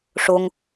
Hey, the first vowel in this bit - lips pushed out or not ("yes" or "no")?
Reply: yes